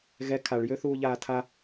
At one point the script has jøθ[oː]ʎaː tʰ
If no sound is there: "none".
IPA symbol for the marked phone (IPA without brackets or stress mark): uː